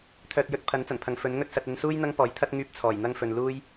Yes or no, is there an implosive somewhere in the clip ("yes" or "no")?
no